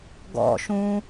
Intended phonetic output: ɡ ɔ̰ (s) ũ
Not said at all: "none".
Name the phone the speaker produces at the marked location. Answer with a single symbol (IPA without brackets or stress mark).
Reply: ʃ